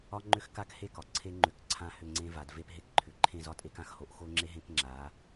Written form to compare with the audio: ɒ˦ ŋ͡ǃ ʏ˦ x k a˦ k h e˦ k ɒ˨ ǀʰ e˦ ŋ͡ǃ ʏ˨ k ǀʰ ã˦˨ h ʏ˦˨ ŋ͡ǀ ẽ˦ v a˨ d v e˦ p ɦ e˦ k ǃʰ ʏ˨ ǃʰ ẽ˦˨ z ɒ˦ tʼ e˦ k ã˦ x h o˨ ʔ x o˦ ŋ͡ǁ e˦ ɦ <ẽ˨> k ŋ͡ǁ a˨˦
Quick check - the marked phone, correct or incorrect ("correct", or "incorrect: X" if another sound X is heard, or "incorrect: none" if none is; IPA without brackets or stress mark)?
incorrect: ẽ˦